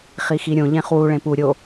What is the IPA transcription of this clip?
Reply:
χixiɾʲõ ʎẽχwu ɭẽpu ɾʲo

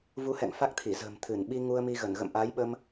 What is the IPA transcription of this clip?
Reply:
vu˨˦hɛ̰˧˨ŋ fa˦˥k̚t̪ʰi˧˩zə̤ː˨˩m t̪ʰɨ˧˩n ɓi˧ ŋu˧ə̯mi˧ɣə˧˩n ɣə̰˧˨mʔaː˨˦jɓə˧m

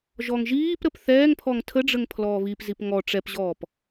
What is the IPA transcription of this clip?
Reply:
ʒɔŋʒiːpɾəp θɛːŋpʰɔŋ tʰəɖ͡ʐəŋ pʰlɔːβipzip ŋɔ ʈ͡ʂɛpʑɔːp

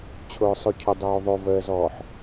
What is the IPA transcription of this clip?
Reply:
t͡ɕʰʊːsˤocʰʊ dˤoːðˤo vəːzɔːħ

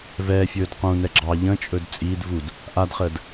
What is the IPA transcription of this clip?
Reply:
vɛːfʲɵːd qũnɛ ɡ͡ǁɑ ʎə̃t͡ʃʼɵd t͡sʼiːd vud | ʔadχəːd

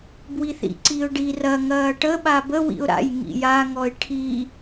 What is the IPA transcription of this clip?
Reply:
bwiθḭǀiʊ̯ɖi rɐ ŋɐːʈə ɓabə wḭʊ̯ɾa̰j ŋḭja ŋɔɪ̯ʈʰi

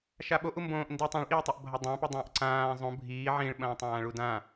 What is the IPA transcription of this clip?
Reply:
ʃaɓo ʔumbõːʔ ndi tˤõɭʔiːtˤɐʔ bʱɐdˤãpɨ dˤɐ̃ːʔǀãː zˤõ bʱiː ʕĩɭɓɐ̃ː tˤãːɭudã

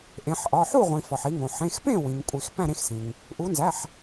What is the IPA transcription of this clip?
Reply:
ʔẽ˩˧ħʔɒ˩˧˩ ħu˥˩ʁʷĩ˩ fɒ˩ħi˩˧ŋõ˩ ħẽ˩˧˩xpẽ˥˩ wĩ˩ŋkʷʼi˩x pæ̃˥˩ɾẽ˥˩xsĩ˩ŋ | ʔu˩˧nzæ˩˧˩ħ

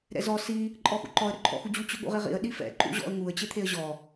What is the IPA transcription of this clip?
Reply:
ɾɛ̰zɔ si | ǃʼɔxṵǃɔə̯ ɾɵǃʰɔ̰xud͡ʑu t͡ɕɵɠṵʁiʁḭə̯ ɗifɛ̰ ǃṵʑɔ̰ə̯ ŋuə̯ t͡ɕet̪ʰeə̯ʑɔ

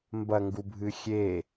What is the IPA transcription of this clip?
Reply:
mbɐŋɡubʱɨ xʲe

